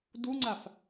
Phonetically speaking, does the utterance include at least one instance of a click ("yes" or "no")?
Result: yes